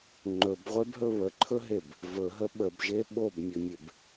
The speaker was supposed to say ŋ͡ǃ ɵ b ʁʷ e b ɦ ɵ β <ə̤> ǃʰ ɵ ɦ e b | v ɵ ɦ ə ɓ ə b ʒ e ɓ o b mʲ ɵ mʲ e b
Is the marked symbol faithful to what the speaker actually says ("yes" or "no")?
no